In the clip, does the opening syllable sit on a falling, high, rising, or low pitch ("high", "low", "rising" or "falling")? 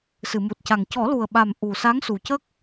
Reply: low